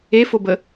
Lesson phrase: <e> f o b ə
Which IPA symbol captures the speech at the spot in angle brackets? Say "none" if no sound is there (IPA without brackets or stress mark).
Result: e